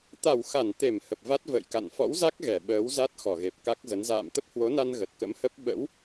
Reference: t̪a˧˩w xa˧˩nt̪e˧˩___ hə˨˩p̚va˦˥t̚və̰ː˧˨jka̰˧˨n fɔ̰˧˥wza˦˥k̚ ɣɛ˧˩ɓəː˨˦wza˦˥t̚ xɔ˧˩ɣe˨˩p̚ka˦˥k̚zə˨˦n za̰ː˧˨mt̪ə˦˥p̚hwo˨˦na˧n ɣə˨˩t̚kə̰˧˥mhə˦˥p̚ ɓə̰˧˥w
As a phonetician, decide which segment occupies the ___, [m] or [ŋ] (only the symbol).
m